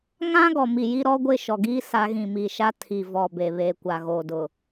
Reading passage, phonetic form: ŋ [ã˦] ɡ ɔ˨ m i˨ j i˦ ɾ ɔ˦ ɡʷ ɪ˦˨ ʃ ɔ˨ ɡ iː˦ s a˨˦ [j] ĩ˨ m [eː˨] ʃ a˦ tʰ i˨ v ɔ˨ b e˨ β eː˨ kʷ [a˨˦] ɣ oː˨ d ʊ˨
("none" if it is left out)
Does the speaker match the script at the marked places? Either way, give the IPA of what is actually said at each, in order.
ã˦, ɣ, iː˨, a˨

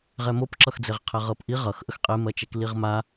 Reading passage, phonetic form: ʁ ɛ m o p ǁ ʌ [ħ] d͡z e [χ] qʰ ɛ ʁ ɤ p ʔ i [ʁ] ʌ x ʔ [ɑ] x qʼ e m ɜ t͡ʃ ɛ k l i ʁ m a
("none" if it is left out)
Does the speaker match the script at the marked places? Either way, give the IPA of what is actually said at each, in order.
x, ʁ, ʁ, ə

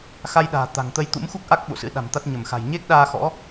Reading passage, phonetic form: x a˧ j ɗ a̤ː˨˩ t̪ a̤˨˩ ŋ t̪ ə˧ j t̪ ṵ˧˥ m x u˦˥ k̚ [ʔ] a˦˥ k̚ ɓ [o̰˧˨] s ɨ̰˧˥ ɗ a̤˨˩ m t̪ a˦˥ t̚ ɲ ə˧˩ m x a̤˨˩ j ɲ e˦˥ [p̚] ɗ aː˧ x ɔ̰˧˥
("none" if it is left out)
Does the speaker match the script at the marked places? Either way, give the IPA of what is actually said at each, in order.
ʔ, o̰˧˨, k̚

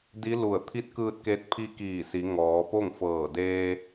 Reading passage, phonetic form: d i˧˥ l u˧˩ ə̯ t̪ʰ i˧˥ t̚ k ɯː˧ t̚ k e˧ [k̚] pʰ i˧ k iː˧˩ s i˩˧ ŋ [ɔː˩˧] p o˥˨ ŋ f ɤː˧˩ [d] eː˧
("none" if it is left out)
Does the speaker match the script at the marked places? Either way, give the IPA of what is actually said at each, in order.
t̚, ɔː˩˧, d

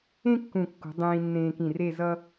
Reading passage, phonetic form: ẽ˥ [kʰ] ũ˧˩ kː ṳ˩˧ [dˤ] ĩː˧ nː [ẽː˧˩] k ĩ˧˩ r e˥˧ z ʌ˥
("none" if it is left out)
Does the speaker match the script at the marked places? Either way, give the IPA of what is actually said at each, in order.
kː, dˤ, ẽː˧

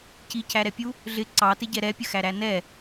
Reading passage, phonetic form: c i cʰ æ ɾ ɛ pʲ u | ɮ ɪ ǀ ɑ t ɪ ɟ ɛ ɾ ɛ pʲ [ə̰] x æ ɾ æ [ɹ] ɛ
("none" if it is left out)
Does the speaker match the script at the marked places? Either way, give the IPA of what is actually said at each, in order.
ə, n

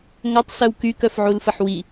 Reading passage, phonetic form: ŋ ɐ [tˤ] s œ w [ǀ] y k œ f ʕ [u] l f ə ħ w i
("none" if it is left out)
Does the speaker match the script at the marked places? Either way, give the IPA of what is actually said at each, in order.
tˤ, k, u

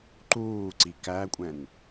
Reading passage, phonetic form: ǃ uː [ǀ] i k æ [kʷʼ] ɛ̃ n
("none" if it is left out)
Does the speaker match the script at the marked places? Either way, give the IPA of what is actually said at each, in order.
ǀ, kʷʼ

